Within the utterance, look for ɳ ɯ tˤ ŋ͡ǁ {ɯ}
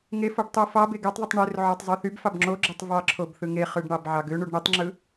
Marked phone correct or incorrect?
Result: correct